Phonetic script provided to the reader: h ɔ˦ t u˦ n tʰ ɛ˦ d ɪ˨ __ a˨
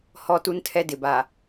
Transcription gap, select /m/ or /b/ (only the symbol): b